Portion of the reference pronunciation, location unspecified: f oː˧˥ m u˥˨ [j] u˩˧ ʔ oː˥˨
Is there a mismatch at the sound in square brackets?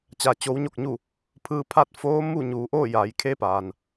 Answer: yes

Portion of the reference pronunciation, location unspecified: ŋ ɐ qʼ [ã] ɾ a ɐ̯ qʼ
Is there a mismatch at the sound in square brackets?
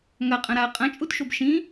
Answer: yes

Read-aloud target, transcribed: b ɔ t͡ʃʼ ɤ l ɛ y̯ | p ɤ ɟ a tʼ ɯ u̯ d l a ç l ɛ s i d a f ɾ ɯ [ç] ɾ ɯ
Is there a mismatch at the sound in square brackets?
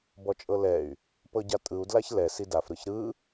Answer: no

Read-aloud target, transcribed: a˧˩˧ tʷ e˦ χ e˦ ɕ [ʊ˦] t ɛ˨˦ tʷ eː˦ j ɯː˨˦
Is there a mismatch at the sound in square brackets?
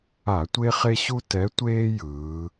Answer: yes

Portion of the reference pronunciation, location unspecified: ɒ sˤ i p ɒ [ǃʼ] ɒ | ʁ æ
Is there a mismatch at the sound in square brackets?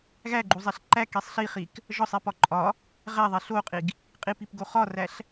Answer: no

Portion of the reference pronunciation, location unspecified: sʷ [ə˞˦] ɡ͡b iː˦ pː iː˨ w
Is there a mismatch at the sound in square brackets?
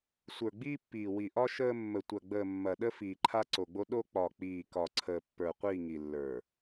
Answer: yes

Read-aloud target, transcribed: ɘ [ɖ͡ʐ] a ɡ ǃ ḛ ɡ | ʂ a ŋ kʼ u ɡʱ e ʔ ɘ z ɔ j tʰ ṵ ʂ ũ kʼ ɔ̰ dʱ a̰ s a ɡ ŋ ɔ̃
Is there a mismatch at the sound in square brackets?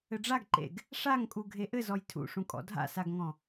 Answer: no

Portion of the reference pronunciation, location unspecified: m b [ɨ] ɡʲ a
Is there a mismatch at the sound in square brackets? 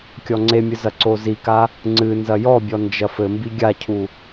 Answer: yes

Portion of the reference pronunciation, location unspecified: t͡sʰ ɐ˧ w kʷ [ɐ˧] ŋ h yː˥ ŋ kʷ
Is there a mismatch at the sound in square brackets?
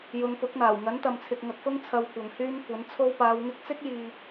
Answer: yes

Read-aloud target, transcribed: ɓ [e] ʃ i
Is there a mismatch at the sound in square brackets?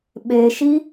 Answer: no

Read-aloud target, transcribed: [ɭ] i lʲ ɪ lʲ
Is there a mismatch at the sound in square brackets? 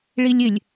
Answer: no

